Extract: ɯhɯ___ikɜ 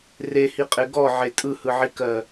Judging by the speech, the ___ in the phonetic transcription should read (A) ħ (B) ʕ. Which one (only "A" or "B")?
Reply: B